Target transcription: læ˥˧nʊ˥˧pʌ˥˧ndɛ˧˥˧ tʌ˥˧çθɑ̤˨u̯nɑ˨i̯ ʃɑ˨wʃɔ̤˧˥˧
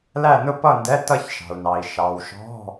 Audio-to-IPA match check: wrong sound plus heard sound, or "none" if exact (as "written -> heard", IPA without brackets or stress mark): θ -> ʃ